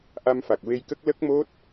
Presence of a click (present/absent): absent